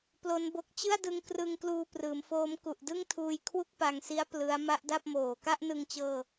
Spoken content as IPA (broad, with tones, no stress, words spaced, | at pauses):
plo˦˥nbo˦˥k̚ t͡ɕɯ˥˩a̯dɯ˧ŋkrɯ˧ŋkluː˧ prɯː˩˦mfoː˦˥m ku˨˩ʔdɯ˥˩ŋtʰuː˧j kʰwu˥˩k̚pa˧ŋsi˦˥a̯ plɯ˦˥a̯ ma˦˥ʔda˥˩p̚moː˨˩ ka˥˩ʔnɯ˧ŋt͡ɕɤː˧